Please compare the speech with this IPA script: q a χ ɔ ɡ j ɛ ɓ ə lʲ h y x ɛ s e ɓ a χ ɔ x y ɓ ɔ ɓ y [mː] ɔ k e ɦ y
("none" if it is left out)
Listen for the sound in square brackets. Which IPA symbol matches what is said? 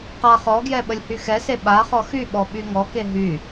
ŋ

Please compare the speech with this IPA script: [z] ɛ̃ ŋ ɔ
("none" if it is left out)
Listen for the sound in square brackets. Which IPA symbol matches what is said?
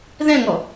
ð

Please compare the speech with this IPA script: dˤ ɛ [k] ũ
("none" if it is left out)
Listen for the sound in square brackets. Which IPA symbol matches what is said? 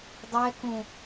k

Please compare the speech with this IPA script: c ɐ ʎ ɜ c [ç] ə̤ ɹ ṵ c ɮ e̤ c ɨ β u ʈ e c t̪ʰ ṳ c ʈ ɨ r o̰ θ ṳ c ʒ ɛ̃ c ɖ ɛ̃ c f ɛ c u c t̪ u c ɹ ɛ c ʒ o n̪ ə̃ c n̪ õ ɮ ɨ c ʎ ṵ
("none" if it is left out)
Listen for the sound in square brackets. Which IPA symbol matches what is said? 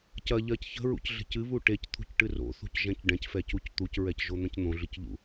ç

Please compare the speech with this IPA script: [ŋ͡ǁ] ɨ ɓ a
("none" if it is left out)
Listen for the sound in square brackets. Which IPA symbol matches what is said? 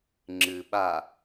ŋ͡ǁ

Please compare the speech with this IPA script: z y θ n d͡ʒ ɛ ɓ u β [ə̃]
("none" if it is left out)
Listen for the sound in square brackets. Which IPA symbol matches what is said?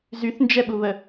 ə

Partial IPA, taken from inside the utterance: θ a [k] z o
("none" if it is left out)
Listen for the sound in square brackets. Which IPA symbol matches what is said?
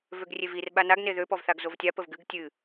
ɡ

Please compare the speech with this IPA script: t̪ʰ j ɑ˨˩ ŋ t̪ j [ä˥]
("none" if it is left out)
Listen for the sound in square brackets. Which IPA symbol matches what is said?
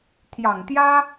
ä˥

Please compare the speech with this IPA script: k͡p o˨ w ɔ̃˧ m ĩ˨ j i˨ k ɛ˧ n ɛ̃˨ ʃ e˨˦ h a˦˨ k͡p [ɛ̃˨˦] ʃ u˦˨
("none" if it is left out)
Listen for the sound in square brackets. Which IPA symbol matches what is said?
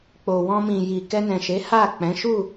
ɛ̃˨˦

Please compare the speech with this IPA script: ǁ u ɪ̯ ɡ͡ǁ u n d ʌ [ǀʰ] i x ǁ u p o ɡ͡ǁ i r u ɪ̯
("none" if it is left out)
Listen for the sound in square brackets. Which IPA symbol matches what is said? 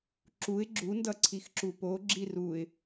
ǀʰ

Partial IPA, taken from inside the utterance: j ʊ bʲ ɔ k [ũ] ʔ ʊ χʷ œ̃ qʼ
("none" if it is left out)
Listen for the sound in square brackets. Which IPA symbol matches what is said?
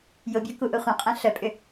u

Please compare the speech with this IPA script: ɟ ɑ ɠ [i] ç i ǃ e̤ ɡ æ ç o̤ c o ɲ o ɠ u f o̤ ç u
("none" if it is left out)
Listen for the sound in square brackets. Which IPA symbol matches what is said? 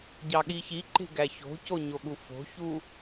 i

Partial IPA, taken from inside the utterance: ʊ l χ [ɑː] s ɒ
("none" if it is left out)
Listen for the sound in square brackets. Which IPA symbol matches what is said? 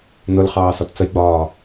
ɑː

